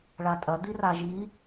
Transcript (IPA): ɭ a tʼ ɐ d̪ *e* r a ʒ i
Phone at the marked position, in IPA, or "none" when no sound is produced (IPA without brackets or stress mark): i